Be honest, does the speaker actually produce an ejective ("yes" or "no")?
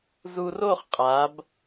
yes